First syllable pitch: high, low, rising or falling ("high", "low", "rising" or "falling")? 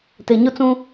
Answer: low